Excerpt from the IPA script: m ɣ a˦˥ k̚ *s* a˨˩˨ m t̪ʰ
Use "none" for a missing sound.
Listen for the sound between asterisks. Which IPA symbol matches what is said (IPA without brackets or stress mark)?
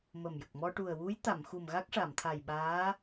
ʂ